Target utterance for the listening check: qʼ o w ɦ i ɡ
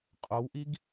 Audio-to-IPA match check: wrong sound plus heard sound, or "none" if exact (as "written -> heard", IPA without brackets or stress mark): ɦ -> ʔ